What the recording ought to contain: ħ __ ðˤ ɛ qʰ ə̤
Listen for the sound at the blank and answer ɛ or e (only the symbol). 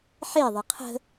e